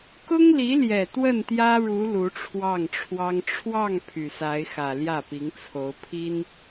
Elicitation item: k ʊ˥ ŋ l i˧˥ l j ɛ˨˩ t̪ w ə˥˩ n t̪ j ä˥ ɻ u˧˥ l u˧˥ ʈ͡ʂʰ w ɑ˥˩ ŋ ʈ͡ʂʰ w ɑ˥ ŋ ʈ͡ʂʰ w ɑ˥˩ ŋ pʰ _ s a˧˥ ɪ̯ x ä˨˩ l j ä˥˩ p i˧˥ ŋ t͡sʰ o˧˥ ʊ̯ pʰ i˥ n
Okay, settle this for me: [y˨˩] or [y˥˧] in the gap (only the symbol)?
y˨˩